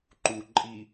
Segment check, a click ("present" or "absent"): present